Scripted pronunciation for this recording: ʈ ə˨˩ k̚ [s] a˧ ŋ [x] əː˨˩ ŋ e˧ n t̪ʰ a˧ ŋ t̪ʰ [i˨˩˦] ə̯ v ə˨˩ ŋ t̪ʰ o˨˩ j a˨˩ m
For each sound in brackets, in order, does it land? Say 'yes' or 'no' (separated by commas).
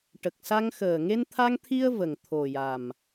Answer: yes, yes, no